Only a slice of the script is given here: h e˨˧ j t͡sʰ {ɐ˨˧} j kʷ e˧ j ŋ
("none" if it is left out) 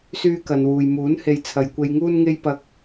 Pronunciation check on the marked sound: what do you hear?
ɐ˨˧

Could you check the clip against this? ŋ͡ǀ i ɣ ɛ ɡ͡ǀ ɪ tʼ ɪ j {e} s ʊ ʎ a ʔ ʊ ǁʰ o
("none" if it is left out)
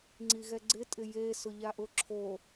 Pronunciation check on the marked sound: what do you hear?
e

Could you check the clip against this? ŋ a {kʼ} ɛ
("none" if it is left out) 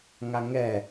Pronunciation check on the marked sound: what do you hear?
ŋ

